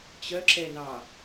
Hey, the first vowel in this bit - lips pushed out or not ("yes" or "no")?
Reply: yes